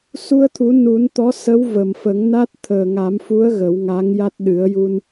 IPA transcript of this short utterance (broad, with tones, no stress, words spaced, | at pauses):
su˧ə̯t̪ʰu˨˩˦ nu˨˩˦nt̪ɔ˧˥ sə˧˥w və˨˩mfə˨˩˦ŋna˦˥t̚ t̪ʰəː˨˩ŋa˨˩˦mfu˧˥ə̯ ɣə˨˩˦wŋa˧˥ŋja˦˥t̚ ɗɨ˨˩˦ə̯ju˧n